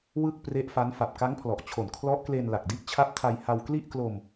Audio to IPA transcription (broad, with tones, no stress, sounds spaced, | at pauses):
w ɯ˥˩ k̚ p r e˦˥ ʔ f a˦˥ n f a˨˩ p̚ k a˦˥ ŋ pʰ l ɔ˨˩ ʔ t͡ɕʰ o˨˩ n kʰ l ɔ˦˥ ʔ k l e˧ n l a˨˩ k̚ d i˦˥ ʔ t͡ɕʰ a˦˥ p̚ tʰ a˧ j h a˧ w k l i˥˩ ʔ k l o˧ m